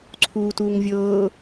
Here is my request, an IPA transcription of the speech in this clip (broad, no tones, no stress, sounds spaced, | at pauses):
ǀʰ uː t uː ŋ vʲ ɤː